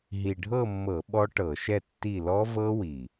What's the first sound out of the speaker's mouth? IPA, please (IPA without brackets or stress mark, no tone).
ɦ